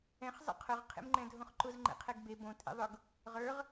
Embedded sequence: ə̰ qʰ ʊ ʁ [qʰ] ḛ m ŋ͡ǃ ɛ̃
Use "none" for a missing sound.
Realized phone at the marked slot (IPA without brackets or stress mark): qʰ